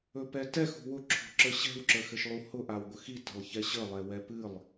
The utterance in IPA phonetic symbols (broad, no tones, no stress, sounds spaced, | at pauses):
ɵ p ɛ t ɛ x ṳ w ʊ ǁʰ o̤ ǁ ə ɕ ɛ̤ w ǁ ə x ɘ ʃ lˠ u h ʊ ʔ a w ɡʷ ə x i t ə̤ lˠ ç ɛ ɕ ə lˠ ɛ w ɛ p ɨ lˠ